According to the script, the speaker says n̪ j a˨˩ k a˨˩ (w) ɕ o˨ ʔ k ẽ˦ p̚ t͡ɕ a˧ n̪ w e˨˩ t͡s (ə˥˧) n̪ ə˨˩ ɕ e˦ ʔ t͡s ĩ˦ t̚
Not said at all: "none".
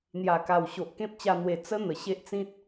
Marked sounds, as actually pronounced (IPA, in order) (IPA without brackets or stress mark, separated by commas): w, ə˦